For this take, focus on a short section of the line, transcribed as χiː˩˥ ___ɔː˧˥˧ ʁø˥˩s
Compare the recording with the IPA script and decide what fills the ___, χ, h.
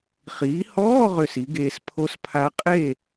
h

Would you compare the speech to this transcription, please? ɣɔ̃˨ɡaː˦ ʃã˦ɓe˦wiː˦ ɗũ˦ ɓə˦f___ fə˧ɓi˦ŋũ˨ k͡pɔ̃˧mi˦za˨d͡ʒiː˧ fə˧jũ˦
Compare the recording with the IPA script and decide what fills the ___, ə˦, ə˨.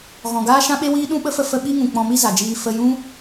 ə˦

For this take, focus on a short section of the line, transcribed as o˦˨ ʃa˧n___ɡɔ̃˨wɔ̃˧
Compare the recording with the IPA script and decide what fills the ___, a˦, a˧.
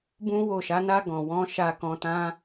a˧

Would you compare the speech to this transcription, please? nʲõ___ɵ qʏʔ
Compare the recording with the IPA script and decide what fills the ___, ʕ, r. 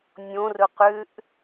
r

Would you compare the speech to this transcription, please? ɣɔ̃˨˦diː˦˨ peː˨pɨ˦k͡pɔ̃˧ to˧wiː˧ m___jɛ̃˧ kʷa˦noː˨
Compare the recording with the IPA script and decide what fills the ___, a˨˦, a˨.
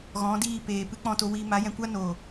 a˨˦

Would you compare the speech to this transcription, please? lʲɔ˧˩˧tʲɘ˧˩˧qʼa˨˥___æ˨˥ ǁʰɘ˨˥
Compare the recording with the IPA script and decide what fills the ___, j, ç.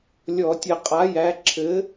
j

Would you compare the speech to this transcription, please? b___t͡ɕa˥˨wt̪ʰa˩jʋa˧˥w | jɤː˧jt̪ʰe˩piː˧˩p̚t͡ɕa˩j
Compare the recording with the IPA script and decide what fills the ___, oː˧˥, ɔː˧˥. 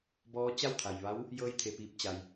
ɔː˧˥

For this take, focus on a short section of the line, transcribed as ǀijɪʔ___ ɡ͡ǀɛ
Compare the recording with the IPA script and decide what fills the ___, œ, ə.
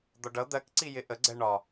ə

